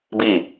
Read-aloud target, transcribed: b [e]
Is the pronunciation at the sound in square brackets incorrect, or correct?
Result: incorrect